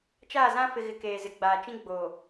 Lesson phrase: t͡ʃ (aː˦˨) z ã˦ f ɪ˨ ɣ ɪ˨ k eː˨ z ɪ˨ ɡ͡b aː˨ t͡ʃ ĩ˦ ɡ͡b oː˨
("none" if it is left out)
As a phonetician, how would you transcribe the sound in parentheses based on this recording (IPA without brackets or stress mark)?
aː˦˨